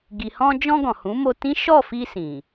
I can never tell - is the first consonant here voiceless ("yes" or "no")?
no